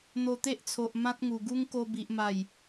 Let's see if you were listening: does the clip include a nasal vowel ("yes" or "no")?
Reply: yes